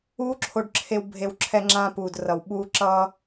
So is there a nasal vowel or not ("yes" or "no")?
yes